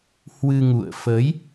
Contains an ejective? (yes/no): no